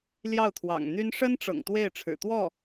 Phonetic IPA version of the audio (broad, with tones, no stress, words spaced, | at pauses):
ljɑ˥˩ʊ̯t̪ʰwɑ̰˨˩ŋn̪y˥n ʂə˥nʈ͡ʂɤ̰˨˩ŋ t̪we˥˩ɪ̯ ʈ͡ʂʰɻ̩˨˩t̪wɔ˥˩